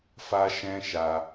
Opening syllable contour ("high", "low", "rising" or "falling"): high